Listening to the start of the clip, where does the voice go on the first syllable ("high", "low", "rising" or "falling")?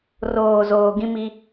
low